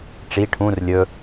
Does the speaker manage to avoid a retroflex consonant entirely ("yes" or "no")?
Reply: no